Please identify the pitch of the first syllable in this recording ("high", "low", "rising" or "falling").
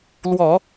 low